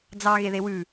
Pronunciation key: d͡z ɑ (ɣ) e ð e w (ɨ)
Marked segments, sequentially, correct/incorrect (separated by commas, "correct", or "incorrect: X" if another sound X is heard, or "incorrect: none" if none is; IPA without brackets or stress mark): correct, incorrect: ʉ